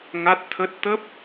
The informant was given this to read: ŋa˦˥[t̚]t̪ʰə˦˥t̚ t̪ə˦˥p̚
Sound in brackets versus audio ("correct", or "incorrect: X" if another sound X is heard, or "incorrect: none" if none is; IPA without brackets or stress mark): correct